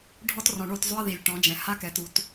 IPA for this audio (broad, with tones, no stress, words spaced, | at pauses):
ɖʱɔ˦trɔ̃˨ɳo˦˨t zˤʏ˦ɐ̯ði˨lʲ ʈɔ̃˨˦d͡ʒɛ̃˨ ha˦kɛ˨ tu˨t